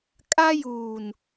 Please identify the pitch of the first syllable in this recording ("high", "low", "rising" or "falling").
high